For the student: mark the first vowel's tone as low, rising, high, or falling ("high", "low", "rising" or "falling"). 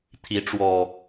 rising